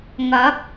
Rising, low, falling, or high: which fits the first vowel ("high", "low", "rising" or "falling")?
rising